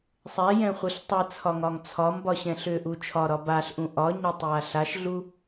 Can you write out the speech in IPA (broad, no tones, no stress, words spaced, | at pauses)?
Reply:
sˤɛjɛ̃χʷɯɬ tˤɯt͡sʰɒŋɒŋ t͡sʰɒmbɒɕɛ̃ɬ ʏʔu t͡ʃʰɒɾɒ baɬʔũ ʔɒɲɒtˤja ɬaʃɮu